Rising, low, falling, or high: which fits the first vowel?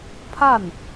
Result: falling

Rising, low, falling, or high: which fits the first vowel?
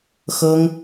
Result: high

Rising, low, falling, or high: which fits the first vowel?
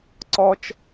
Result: low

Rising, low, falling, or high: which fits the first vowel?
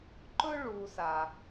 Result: high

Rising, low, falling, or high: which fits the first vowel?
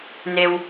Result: low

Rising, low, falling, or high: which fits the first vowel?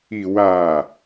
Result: low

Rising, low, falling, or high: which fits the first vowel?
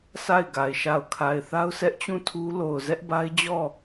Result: falling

